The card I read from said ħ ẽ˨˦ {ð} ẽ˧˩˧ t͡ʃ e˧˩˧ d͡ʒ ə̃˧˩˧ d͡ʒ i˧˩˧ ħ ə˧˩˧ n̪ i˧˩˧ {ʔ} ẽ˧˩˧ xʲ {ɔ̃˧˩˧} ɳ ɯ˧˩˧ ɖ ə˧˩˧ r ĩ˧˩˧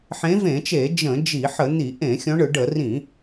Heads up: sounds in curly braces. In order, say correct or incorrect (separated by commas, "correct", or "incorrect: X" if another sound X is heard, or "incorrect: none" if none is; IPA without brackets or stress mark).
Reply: incorrect: v, correct, incorrect: ɔ̃˨˦